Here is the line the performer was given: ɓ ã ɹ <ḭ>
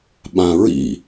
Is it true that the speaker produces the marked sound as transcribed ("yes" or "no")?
yes